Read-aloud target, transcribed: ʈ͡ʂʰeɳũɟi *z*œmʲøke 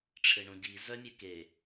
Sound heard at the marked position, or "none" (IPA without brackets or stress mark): z